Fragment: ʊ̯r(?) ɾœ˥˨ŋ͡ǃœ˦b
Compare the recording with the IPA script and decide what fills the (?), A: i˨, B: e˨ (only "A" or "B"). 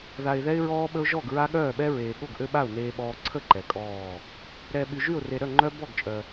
B